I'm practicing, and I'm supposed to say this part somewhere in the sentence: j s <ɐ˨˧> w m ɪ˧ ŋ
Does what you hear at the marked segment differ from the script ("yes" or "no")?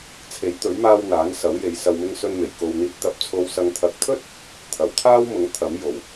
yes